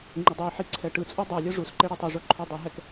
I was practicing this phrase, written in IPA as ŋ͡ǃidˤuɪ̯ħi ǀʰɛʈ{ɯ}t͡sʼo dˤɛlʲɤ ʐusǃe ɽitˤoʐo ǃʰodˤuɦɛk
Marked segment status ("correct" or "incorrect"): correct